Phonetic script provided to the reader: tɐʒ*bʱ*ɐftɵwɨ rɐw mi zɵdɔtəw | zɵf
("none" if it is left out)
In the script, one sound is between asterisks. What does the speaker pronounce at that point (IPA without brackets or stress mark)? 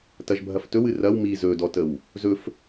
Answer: bʱ